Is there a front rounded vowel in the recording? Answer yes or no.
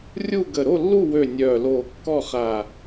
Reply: yes